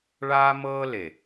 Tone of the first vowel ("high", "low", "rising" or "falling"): high